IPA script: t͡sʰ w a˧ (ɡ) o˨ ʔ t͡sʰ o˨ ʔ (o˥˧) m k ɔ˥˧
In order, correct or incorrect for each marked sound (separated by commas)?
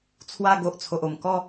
correct, incorrect